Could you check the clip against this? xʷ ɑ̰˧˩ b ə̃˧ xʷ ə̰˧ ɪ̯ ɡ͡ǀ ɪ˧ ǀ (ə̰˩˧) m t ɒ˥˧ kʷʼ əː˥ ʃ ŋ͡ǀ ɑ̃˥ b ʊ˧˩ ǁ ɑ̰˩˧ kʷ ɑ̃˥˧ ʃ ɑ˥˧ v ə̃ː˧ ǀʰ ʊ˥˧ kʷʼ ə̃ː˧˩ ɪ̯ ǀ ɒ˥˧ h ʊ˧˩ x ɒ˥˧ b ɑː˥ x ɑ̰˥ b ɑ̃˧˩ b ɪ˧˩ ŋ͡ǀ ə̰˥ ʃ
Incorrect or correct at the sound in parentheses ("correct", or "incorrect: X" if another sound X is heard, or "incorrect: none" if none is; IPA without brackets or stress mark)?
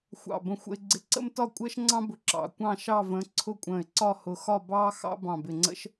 incorrect: ə̰˥